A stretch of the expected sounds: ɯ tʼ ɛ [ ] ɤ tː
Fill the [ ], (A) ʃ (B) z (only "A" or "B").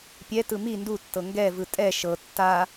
A